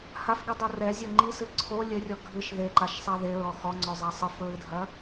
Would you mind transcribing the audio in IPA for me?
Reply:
h a f ɡ i dˤ u r ɛ zʲ o ŋ͡ǃ i s ɨ ǀʰ o lʲ ɘ rʲ ɔ ɡʱ ɨ ʃ ð e ǃ a ʃ sˤ a ð e ɹ ɔ x ɔ ŋ͡ǀ ɔ zˤ a sˤ ɨ f ɹ ɨ dʱ ɐ

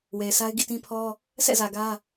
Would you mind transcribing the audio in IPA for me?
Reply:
w e˨ ɪ̯ sʰ a˦ ɪ̯ ɡ ḭ˦˨ t ĩ˦ pʰ ɔ˦ | s ɛ̰˦˨ z ä˨ ɡ ä˦

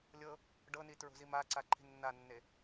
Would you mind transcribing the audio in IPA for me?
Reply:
lʲ ɤ | ɖ ɤ n i t ɹ o̤ z i m a ǀ a ǃʰ i̤ nː a nː e

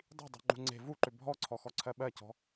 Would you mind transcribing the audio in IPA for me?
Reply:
dˤ i̤ dˤ ṳ ŋ͡ǃ ṳ ŋ͡ǀ e̤ v u ǃ ʏ bʱ ɔ ǀʰ ɔ x ɔ ǀʰ ɜ ɓ ɜ c ɔ̤

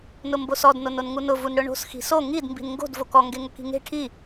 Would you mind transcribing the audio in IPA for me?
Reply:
n ʊ m b o s ɔ d n o n o n ŋ u n ʊ v u n ɽ ʊ ɳ o̤ s x i̤ s o ŋ i d m b i̤ n ŋ ɡ o̤ d v o k ɔ ŋ ɡ e ŋ ʊ k i̤ ŋ e̤ ʈʰ i

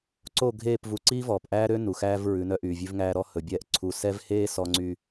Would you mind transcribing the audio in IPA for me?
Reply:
ǀ o˦˨ ɡʱ eː˦˨ p v u˨ ǀ iː˦ v ɔː˨ p ʔ æː˦ ɾ ø˦ n u˨ x æː˦ v ɹ ʉ˨˦ n œ˦ ʔ yː˨ vʲ ʉ˦ v ŋ æː˦ ɾ ɔ˦ h ɵ˨ bʲ ɛː˦ ʔ ǀʰ u˦˨ s ɛ˦ v h eː˦ s ɔ˦ ŋ͡ǀ y˦

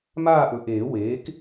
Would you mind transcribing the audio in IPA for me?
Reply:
m aː˥˧ ʔ ɵ˨ ʔ eː˨˩˦ w eː˩˥ k

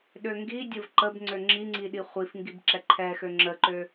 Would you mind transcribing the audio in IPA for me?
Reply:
ɗ ø ŋ ɡ i dʲ ə v ǃ ə b ŋ͡ǀ ø ŋ͡ǁ i ŋ͡ǀ i ɗ i χʷ i f ŋ ɡ i b ǁ ɛ ǃʰ ɛ x ø ŋ͡ǁ ə ǃ ø

